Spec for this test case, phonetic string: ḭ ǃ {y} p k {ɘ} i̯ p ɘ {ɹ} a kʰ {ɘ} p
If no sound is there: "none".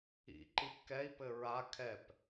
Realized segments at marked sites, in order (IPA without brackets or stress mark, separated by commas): i, ɛ, ɹ, ɛ